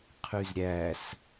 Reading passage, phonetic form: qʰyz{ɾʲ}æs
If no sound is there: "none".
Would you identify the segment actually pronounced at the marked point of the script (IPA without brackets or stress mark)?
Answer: ɾʲ